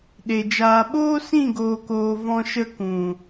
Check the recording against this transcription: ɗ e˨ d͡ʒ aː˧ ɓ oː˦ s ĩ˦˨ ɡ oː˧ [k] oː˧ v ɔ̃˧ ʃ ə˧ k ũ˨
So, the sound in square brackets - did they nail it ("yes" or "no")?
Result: yes